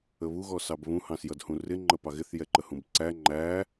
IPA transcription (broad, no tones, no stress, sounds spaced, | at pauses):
ə β u ɣ ɔ s ɑ b β ũ h ɑ̃ s j ʌ d h ũ r ɪ ŋ͡ǃ ə p ɑ ɣ ɪ θ j ɛ ǃ ə h ũ b ǀ æ ŋ͡ǃ æ